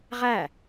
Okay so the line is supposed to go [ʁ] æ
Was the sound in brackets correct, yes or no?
yes